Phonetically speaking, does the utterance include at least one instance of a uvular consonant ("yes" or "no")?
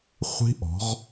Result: yes